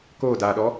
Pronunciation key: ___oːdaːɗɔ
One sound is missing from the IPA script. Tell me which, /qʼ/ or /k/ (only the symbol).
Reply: k